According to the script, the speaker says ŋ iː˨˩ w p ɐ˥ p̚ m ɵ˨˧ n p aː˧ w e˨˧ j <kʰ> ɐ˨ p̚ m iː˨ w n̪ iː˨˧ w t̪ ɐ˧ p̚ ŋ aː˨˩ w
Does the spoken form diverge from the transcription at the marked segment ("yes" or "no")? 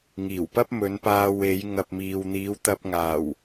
yes